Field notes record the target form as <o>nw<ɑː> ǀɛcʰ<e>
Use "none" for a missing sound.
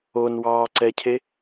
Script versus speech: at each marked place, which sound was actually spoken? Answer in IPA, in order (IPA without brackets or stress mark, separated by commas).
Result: o, ɑː, e